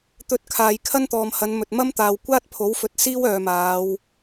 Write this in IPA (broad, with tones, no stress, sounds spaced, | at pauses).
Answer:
t̪ ɵ˧ t̚ kʰ aː˨ j kʰ ɐ˥ n t̪ ɔː˨ m h ɐ˨˧ n m ɵ˨ t̚ m ɐ˥ m t̪ aː˨ w kʷ aː˥ t̚ pʰ o˨˥ w f ɵ˨ t̚ s iː˥ w œː˨ m aː˨˧ w